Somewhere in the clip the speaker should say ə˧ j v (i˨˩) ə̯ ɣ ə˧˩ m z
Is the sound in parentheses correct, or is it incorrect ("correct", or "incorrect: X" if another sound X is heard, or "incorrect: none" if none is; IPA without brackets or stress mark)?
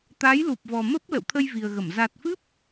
correct